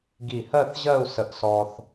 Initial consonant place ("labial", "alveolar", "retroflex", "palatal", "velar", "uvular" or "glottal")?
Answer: velar